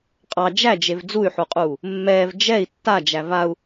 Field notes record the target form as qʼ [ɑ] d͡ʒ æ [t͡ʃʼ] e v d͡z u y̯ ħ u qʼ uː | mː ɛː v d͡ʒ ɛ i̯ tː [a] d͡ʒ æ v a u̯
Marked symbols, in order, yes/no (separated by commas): yes, no, yes